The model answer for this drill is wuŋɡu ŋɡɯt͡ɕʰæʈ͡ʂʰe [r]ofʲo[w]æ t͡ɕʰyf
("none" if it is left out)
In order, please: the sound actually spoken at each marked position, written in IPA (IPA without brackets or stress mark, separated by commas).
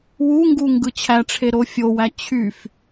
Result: ɾ, w